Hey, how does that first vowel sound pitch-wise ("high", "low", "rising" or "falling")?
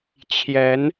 rising